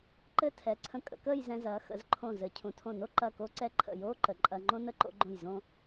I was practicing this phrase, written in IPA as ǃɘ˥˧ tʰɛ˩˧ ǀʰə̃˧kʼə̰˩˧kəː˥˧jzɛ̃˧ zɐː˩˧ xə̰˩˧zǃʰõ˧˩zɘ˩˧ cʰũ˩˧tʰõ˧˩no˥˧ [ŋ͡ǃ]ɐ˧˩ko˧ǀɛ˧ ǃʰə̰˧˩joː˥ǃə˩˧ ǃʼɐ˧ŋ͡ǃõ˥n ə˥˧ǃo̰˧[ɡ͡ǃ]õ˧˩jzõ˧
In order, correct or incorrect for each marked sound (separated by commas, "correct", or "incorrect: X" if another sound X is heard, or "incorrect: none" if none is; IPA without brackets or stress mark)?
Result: incorrect: ǃ, correct